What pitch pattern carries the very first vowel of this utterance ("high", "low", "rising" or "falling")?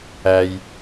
low